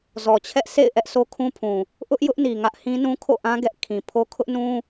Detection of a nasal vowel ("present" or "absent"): present